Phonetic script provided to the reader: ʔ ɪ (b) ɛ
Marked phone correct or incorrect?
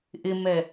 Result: incorrect